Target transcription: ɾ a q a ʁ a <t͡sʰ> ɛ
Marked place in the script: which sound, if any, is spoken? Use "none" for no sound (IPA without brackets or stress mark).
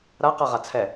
t͡sʰ